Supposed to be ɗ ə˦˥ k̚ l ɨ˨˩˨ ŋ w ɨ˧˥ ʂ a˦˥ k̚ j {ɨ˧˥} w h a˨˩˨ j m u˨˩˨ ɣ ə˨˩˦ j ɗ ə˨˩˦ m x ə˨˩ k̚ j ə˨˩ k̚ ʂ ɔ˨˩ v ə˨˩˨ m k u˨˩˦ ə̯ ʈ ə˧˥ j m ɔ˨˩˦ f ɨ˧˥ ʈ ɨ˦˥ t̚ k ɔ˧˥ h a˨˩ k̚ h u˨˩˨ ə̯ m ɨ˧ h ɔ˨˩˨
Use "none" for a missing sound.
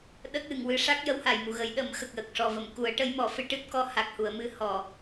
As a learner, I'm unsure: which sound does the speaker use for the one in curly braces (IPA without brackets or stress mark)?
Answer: ə˧˥